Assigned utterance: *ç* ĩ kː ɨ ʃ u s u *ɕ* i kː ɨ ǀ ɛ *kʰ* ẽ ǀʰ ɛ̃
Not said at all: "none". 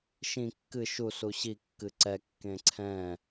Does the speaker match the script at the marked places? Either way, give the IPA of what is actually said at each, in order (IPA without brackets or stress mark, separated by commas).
ʃ, ɕ, kː